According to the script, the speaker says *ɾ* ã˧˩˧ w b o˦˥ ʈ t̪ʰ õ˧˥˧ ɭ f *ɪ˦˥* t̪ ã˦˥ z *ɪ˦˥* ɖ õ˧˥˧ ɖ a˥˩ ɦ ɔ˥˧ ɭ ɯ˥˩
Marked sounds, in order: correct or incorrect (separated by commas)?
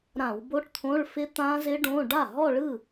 correct, correct, correct